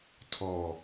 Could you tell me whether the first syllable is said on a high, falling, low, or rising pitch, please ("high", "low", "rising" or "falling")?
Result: low